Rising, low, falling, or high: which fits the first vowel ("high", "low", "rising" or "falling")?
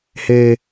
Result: high